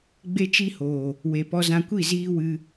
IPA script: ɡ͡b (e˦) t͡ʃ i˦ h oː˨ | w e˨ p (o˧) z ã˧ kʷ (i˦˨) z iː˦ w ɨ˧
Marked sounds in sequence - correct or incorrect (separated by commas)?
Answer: correct, incorrect, correct